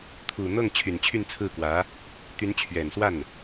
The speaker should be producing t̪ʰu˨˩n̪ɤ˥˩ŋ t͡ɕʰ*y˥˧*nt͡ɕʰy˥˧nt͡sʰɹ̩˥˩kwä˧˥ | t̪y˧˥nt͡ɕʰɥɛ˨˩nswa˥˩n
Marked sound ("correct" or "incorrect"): incorrect